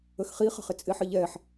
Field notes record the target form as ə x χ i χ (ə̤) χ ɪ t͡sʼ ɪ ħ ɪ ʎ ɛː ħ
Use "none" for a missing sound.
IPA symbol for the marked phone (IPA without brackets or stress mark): ə̤